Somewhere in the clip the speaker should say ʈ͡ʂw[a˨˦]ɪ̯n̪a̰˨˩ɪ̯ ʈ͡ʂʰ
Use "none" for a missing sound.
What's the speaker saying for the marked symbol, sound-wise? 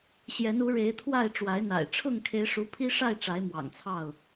a˨˦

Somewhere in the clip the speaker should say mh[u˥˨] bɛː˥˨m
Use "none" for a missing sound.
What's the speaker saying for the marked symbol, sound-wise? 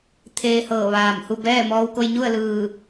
u˥˨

